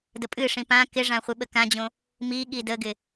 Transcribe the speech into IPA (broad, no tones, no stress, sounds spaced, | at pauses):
d ə pʼ ɨ ʂ ĩ p ã k ɪ ʐ ã χʷ ɨ ɓ ə k ã d͡ʑ õ | m i ɠ i d ə ɡ ɪ